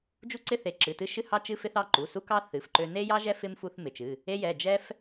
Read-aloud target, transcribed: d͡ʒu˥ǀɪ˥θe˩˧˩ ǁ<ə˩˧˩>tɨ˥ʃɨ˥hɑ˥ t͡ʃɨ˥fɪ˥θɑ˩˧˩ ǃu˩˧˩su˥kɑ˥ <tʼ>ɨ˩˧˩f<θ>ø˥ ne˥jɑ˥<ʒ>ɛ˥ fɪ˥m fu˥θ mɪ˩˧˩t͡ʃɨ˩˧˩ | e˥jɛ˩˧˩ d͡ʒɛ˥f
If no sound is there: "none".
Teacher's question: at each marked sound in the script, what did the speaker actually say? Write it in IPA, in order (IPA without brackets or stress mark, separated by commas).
ɨ˩˧˩, θ, ǃ, ʒ